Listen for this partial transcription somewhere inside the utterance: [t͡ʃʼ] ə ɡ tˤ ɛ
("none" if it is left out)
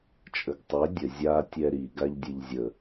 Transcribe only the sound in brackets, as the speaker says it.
t͡ʃʼ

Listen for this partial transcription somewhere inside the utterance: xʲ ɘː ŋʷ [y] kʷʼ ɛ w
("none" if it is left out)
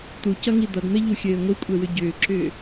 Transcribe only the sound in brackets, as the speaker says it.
i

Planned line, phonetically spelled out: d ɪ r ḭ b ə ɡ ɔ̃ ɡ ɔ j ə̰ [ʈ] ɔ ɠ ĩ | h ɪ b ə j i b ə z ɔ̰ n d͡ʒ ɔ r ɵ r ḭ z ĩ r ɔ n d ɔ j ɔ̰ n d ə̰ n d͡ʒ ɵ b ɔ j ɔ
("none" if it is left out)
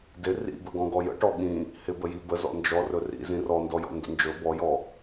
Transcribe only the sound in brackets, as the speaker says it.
ʈ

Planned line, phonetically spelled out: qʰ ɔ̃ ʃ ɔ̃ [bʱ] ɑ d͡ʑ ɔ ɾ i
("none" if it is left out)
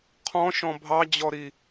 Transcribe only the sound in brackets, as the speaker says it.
bʱ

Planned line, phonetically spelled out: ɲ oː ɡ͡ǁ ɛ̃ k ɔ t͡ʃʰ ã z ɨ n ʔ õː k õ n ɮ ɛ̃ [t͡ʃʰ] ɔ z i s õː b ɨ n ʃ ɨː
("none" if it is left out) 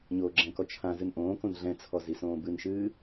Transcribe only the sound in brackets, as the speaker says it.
t͡sʰ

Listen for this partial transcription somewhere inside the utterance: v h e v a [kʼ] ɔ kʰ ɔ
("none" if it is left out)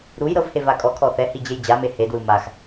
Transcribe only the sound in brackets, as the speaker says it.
kʼ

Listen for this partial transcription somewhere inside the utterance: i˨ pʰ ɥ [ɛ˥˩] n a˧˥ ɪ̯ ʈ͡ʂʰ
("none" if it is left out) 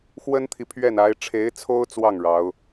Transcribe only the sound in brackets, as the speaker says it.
ɛ˥˩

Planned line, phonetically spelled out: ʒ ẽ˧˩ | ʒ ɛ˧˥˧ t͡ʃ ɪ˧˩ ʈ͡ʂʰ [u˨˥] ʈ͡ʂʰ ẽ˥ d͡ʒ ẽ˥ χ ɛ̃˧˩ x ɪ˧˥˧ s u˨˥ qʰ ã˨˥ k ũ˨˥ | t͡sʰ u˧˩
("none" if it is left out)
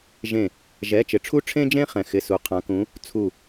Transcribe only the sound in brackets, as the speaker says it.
u˥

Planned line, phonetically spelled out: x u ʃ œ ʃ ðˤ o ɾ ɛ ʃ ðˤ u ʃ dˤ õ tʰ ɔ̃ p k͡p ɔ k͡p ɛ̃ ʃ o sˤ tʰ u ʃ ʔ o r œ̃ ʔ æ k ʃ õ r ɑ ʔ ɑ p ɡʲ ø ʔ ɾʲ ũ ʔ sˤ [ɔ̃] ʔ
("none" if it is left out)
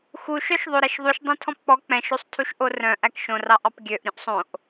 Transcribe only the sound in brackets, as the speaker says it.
õ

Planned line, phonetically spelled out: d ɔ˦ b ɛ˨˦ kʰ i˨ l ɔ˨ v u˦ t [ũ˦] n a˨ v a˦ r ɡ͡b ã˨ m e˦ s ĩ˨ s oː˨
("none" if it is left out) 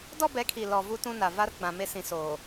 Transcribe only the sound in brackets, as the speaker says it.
ũ˦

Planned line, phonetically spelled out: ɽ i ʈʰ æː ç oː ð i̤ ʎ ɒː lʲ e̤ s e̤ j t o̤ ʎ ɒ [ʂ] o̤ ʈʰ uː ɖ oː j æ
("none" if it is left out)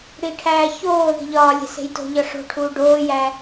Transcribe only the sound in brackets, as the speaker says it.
ʂ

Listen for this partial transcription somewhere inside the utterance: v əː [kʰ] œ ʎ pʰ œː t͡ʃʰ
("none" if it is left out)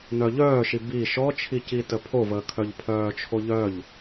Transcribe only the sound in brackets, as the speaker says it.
kʰ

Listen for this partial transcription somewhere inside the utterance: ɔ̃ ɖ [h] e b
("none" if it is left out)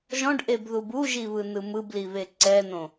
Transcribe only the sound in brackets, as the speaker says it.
ʔ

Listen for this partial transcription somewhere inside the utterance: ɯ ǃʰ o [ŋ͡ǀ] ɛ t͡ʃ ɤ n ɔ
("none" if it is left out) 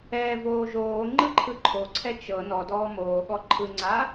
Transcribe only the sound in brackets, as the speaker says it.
ǀʰ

